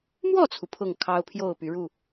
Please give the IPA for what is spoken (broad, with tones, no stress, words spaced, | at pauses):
mwɔ˥˨t͡sʰu˩ pʰʊ˥˨ŋkʰɑ˦ʊ̯ pʰjo˥˨ʊ̯py˨˦ɻu˥˨